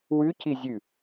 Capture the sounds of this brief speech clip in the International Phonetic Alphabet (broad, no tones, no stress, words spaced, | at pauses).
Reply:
wʉci zʲʉ